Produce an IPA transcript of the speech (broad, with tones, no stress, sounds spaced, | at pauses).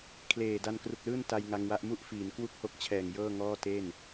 kʰ l eː˨˩ d a˧ n k r u˨˩ k̚ l ɯː˥˩ n t a˧ j ŋ a˧ ŋ w a˦˥ ʔ m u˥˩ ʔ f iː˩˦ n k w u˥˩ k̚ h o˥˩ k̚ t͡ɕʰ ɛː˨˩ ŋ j ɤː˥˩ ŋ ɔː˥˩ t e˥˩ n